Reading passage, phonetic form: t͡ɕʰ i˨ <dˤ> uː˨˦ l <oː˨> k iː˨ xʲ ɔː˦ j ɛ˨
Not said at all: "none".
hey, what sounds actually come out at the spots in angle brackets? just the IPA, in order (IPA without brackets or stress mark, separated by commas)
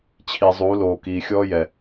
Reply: zˤ, oː˨